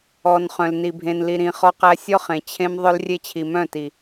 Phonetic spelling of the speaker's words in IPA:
ɔ˨ n χ œ̃˨ l n i˨ bʱ ẽ˨ n l i˨ ɾ ĩ˨ χ ɔ˦ q æ˦ sʲ ɔ˦ χ ẽ˨ t͡ɕʰ ẽ˦ m ðˤ œ˦ l rʲ e˦ t͡ɕʰ i˨ m œ̃˦˨ t i˨

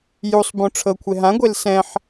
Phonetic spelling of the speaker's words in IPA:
j u sˤ b õ ʈ͡ʂʰ ɤ kʷʰ e ɦ ã ɡʷ e l s ɛ̃ ħ

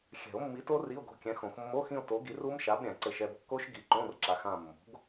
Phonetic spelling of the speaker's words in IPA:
xʲ ɛ̤˨˩˦ o̯ mː i˨˥ t o˦˥ r i˧˥˧ o̯ ɡ o̤˦˨ kʲ ɛ̃˨˥ x õ˨˩˦ x mː o˧˥˧ x ĩ˦˨ o̯ t o˨˥ ɡ i˨˥ r u˦˥ m ʃ a˨˥ b ɾʲ ɛ̃˨˩˦ ǀ ɘ˦˨ ʃ ɛ˦˨ b kː o˦˥ ʃ ɡ i˨˥ ǃ õ˧˥˧ r ǁ a˨˥ x ã˦˨ mː o̤˨˥ ɡ

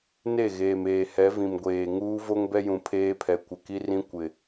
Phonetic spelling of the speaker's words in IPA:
n e˦˨ ɣ eː˨ m eː˨ h ɛ˨˦ v ĩ˨ m ɡʷ eː˨ ŋ uː˦ v o˦ ŋ b ɛ˦ j ũ˨ pʰ eː˦ pʰ ɛ˨ kʷ ɪ˨ k i˦ r ĩ˦ kʷ ɪ˨

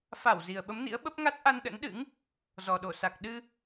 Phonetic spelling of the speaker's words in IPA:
f a˧˩ w z i˨˩ ə̯ ɓ ə˨˦ m n ḭ˧˥ ə̯ ɓ ə˦˥ p̚ ŋ a˦˥ t̚ ʔ a˧ n ɗ ə̰˧˥ n ɗ ɨ̰˧˥ ŋ | z ɔ˨˩ ɗ o˧˩ s a˨˩ k̚ ɗ ɨ˧

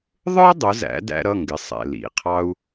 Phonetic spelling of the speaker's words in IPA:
ðˤ ə˞˥ dˤ ʊ˩˧ z æ̰˩˧ d æ̰˥ ɾ ʌ˧˥˧ ŋ ɡ ɪ˩˧˩ sˤ ɛ̰˧˩ l ḭ˩˧˩ qʰ ɑ˥ u̯

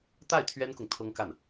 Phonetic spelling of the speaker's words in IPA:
t̪ a˥˩ ɪ̯ t̪ʰ ɥ ɛ˥ n k ʊ˨ ŋ t̪ʰ ɤ˥ ŋ k a˥˩ n

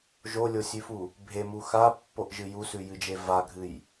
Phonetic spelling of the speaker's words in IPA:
ʒ o lʲ o sʲ ʉ f u | bʱ e m u x a pː o ʔ ʒ ɨ j u s ʉ j ɨ d͡ʒ e v a ɡʱ ɨ j

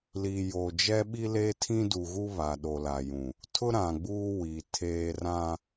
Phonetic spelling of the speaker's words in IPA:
l i˨ j oː˨ d͡ʒ ɛ˦ ɓ i˦ l eː˦ tʰ ĩ˦ d u˨ ɣ u˦ β a˨ ɗ o˨ l a˨ j ũ˨ | tʰ ʊ˦ ɾ ã˨ ɡ͡b uː˦ w i˨ tʰ eː˦ r ã˦

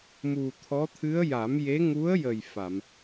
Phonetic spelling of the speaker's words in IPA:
m u˨˩ t̪ʰ ɔ˧˥ t̪ʰ ɨ˧˥ ə̯ j a˨˩˦ m j e˧˥ ŋ u˧˥ ə̯ j ə˨˩ j f a˨˩˨ m

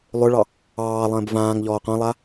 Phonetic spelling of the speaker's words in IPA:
lˠ ʏ ɭ ɑ | ɑː lˠ ə̃ː b v ãː ŋ ʎ ɔː qʷ ã lˠ a

